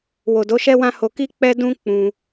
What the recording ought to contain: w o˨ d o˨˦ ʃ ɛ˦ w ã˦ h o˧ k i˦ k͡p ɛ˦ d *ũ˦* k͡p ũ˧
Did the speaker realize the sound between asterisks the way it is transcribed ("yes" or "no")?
yes